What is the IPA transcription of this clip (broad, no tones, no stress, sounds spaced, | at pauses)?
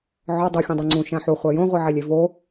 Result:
ʕ ɒ dˤ u xʲ õ dˤ i ŋ͡ǀ ũ ʃ æ̃ ħ u χʷ æ j õ ʁʷ i ʕ i lʲ e v o